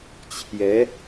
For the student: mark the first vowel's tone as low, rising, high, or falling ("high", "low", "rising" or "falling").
rising